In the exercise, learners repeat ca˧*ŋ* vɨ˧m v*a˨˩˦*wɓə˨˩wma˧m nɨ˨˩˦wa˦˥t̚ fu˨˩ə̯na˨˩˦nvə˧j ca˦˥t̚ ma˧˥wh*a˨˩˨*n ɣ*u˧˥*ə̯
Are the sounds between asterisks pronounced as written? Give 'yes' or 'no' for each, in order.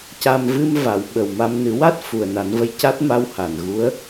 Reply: no, yes, yes, yes

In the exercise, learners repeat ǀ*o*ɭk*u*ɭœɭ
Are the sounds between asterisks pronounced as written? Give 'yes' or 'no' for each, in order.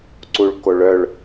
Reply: no, no

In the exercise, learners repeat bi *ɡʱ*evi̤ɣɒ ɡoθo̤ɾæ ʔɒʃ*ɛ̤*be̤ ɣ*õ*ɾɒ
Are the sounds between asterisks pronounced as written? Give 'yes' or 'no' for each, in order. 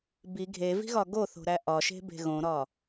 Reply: yes, no, yes

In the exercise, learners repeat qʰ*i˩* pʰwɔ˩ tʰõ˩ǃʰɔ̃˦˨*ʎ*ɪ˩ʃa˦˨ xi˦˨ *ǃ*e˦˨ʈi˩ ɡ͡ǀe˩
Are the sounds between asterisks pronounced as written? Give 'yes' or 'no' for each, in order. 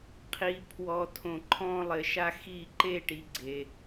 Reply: yes, no, yes

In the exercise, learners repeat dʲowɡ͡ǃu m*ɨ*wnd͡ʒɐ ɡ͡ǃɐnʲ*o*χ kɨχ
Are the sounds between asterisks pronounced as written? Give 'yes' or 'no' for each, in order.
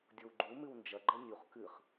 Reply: yes, no

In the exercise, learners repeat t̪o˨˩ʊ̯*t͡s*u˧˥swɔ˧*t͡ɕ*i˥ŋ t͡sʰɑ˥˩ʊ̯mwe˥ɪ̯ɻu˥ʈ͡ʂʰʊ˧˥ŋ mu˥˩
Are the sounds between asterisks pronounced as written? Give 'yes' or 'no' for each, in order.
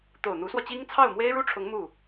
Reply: no, yes

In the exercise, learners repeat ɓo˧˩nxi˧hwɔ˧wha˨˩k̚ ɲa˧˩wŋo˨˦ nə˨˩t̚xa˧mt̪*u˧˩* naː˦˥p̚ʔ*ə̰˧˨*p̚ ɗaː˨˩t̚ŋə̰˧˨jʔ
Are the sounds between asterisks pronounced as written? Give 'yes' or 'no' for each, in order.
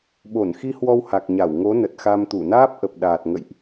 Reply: yes, no

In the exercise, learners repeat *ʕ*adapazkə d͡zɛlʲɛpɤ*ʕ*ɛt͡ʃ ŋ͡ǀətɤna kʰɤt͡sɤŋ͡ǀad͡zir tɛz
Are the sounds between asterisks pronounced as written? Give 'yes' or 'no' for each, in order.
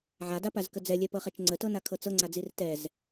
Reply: yes, no

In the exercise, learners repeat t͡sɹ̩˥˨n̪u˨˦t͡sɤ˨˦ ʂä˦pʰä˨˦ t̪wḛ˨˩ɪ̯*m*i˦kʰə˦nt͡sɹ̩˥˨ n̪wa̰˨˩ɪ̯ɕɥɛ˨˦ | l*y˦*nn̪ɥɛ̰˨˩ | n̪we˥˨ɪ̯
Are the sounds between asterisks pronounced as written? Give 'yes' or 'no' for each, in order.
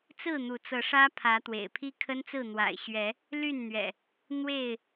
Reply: no, no

